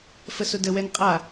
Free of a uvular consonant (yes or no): no